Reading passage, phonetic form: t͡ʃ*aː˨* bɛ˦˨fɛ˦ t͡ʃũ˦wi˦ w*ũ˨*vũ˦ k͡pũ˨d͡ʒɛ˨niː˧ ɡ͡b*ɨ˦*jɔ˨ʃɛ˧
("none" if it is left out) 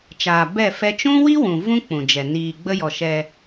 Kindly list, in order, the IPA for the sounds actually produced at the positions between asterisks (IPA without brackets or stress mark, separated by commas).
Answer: aː˨, ũ˨, ə˦